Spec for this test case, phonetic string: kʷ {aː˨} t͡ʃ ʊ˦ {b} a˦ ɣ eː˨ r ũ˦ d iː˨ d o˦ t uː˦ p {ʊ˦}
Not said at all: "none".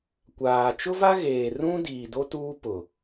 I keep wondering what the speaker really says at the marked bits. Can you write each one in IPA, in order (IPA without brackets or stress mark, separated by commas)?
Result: aː˨, v, ʊ˨